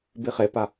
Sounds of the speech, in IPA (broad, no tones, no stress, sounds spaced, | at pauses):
b i χ e p a